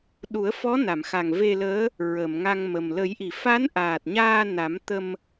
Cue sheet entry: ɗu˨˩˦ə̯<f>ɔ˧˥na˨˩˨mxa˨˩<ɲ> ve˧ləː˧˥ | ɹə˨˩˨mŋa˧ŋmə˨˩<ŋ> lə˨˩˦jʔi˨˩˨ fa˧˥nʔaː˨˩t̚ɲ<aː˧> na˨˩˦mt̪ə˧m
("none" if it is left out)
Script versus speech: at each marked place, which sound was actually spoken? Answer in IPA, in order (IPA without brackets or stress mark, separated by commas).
f, ŋ, m, aː˧